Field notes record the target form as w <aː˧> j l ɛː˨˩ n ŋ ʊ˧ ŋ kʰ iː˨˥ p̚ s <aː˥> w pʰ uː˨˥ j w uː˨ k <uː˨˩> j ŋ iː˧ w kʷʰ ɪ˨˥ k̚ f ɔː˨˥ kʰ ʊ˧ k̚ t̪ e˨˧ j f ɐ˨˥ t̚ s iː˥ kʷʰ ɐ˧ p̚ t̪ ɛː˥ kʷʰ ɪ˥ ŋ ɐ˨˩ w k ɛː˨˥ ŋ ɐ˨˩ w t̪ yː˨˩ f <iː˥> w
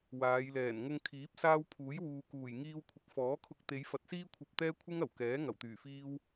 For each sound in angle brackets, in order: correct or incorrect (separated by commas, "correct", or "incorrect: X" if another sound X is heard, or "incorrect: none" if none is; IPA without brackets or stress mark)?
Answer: incorrect: aː˨˧, correct, correct, correct